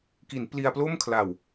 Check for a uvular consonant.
absent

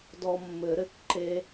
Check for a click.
present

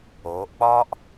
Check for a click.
absent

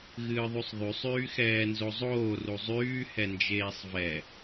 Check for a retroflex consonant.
absent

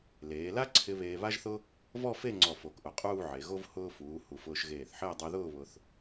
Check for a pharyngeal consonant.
present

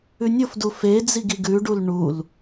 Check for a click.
absent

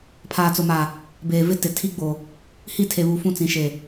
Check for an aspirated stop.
present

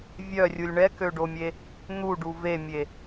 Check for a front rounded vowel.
present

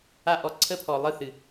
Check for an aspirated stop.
present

